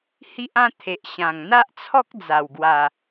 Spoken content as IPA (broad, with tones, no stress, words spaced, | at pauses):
hi˦ʔã˦t̪ʰe˨ʔɕã˨˩ŋ n̪a˦ʔt͡sʰɔ˦k̚ d͡za˨˩wɡwa˨˩